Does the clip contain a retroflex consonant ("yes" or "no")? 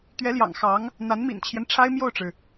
yes